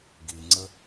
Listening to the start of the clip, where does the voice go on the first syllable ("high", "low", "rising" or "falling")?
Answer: low